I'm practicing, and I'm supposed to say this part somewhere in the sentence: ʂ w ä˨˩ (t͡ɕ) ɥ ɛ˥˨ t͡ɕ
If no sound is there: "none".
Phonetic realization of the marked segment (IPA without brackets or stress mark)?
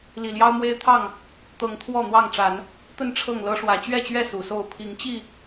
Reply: t͡ɕ